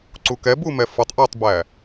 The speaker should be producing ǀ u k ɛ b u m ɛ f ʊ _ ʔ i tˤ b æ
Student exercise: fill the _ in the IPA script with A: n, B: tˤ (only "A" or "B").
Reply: B